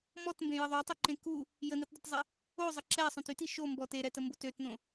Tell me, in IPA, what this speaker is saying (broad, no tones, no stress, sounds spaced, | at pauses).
m ɔ t m b ẽ j ə ðˤ ø tˤ y ǃ ẽ k u | j ə n i t dˤ ø t zˤ e | o zˤ ə ǁ ɛ sˤ œ̃ t y t i ʃ o m b ɔ t e ɾ ɛ t ə m b o t ø t n õ